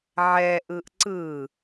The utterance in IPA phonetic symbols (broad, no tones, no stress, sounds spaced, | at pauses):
ʕ ɛ ʔ ɯ ʔ ǀ ɯ